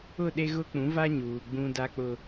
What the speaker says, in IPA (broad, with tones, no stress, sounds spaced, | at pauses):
ʊ˦˨ ɗ e˦ ɣ ʊ˦ k͡p ũ˨˦ v a˦ ɲ uː˨ ɡ͡b ũ˦ d a˦ k͡p ʊ˦